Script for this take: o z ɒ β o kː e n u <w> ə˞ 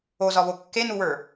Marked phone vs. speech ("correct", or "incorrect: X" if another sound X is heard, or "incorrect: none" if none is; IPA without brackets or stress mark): correct